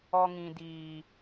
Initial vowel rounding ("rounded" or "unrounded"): rounded